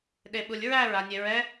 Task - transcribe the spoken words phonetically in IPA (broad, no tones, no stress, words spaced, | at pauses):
ɗeɓulʲɹæɹ anʲeɹɛ